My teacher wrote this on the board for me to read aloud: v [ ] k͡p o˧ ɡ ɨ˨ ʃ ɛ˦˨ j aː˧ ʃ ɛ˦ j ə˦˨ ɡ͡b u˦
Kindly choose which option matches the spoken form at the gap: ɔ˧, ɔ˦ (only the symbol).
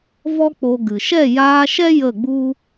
ɔ˦